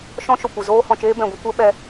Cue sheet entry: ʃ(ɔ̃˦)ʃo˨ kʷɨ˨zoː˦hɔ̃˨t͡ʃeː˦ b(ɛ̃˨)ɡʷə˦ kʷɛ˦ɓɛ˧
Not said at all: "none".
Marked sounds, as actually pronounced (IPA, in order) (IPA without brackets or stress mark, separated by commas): ɔ̃˦, ɛ̃˨